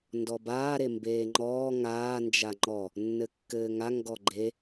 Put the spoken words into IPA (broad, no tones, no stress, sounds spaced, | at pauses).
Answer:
n d ɔ b aː ɾ e m b eː ŋ͡ǃ ɔː ŋ aː n d͡ʒ a ŋ͡ǃ ɔ | nː ɘ kː ɘː ŋ a ŋ ɡ ɔ ɡ͡ǃ e